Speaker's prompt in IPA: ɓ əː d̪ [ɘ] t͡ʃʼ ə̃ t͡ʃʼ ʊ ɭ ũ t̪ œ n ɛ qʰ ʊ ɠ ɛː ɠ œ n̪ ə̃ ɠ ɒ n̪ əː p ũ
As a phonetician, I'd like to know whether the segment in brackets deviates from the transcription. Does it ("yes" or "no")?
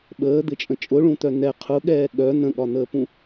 no